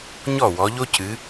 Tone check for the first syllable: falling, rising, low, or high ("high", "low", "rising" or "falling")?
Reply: falling